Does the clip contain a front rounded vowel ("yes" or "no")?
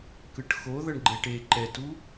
no